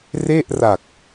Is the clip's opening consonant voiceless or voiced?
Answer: voiced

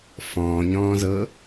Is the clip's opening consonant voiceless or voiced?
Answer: voiceless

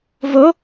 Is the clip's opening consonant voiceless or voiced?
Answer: voiced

